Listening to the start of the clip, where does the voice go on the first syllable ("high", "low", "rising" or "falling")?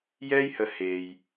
high